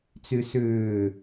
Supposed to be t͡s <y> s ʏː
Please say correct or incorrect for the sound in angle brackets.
correct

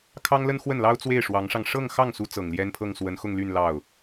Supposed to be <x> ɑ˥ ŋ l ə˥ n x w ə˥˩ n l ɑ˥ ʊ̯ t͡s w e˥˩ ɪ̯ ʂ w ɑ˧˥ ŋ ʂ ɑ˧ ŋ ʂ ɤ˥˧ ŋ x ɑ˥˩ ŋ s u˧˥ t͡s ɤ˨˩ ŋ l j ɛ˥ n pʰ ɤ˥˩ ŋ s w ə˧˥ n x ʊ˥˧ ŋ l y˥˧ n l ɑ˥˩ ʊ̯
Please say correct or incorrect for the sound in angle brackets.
incorrect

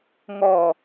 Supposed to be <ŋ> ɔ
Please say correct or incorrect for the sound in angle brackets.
correct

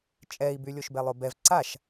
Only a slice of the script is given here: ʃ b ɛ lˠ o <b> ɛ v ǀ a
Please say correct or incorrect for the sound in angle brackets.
correct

